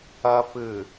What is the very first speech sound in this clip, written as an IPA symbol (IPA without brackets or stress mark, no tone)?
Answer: ɐ